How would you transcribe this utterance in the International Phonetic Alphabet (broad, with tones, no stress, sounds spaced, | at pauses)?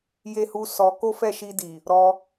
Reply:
j e˦ h u˦ s ɔ˧ k o˦ f ɛ˦˨ ʃ i˧ d i˨ | ɾ ɔ˧